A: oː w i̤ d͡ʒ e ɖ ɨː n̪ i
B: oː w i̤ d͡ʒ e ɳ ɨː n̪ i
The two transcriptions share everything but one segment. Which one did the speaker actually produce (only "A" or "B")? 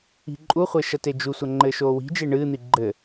B